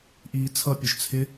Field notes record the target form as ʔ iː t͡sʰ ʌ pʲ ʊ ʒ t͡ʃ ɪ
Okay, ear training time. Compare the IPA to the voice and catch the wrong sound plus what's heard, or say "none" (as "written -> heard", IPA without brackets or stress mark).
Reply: t͡ʃ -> t͡sʰ